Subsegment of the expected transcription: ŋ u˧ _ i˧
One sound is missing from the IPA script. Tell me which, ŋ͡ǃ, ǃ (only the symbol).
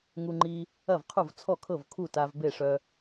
ŋ͡ǃ